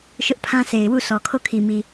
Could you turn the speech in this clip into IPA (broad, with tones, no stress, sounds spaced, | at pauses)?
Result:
ʃ ʊ˦ ʔ pʰ ã˦ s e˨ ɪ̯ w u˦˨ sʰ ɔ˨ kʰ o˦˨ kʰ i˨ m i˨